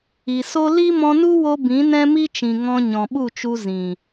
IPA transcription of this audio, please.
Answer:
i˨ s o˦ l i˦ m ɔ̃˧ n u˦ w o˧ b ĩ˨˦ n ɛ̃˦ m i˦ t͡ʃ ĩ˨ ŋ ɔ̃˧ ɲ ɔ̃˨ ɓ u˦˨ t͡ʃ u˧ z ĩ˨

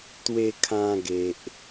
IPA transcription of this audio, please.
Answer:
t̪ w e˧ kʰ ã˧ ɡ e˨ ʔ

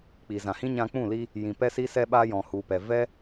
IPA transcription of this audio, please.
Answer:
k͡p iː˨ z ã˨ h ĩ˦ ɲ ã˧ k͡p ũ˦˨ l i˧ | j ĩ˨ p ɛ˧ s i˧ s ɛ˧ ɓ aː˧ j ɔ̃˨ h u˨ p ɛ˨ v ɛ˦

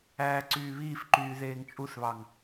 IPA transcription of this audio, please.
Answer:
æː ǀ yː β iː f ǃ yː ð eː ŋ t͡ʃʼ u θ β ɑ ŋ

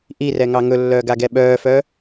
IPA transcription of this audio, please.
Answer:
ʔ i r ɛ ŋ ɑ ŋ ɵ lː œː ɡ a ɡ ɛ ɓ œː f œ

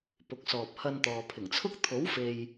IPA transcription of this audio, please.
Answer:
p ʊ˨˥ k̚ s ɔː˨ p̚ h ɐ˧ n t̪ ɔː˨ pʰ ɪ˨˩ ŋ t͡sʰ ʊ˥ k̚ t̪ʰ o˨˥ w f e˨ j

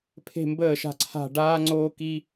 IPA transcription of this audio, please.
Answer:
pʰ e̤˥˨ m b əː˥˨ ʃ a̤˥˨ ǀʰ a̤˥˨ ɖ aː˦ ŋ͡ǀ oː˦ k i˦

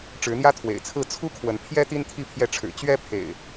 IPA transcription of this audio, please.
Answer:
ʈ͡ʂ ɻ̩˨˦ n̪ j ä˦ t̪ʰ w ḛ˨˩ ɪ̯ t͡sʰ ɹ̩˥˨ t͡sʰ u˦ kʰ w ə˨˦ n pʰ j ɛ˦ t̪ i˦ n t̪ʰ i˥˨ pʰ j ɛ˥˨ ʈ͡ʂʰ ɻ̩˨˩ t͡ɕ ɥ ɛ˦ pʰ ḛ˨˩ ɪ̯

